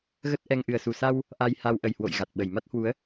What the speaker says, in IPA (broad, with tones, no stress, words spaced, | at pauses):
ɣə˦˥t̚ʔɛ˧ŋ ʔɨ˨˩ə̯su˨˩sa˧w | ʔa˧jha˧w ʔə˨˩jhwo̰˧˨j ɣa˨˩t̚ɓə˨˩j ma˦˥t̚hwu˨˦ə̯